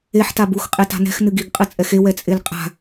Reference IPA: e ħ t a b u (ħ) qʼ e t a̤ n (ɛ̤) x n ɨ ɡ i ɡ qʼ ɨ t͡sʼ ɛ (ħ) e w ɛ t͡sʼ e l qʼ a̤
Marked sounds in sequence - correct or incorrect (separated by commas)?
incorrect, correct, incorrect